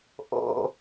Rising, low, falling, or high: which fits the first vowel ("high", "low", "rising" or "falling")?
low